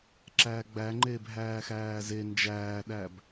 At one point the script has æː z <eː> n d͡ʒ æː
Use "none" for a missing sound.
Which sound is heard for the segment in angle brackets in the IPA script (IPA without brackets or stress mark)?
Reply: e